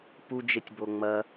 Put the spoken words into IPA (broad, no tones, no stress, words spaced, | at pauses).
pud͡ʒetʲbo ŋ͡mɐ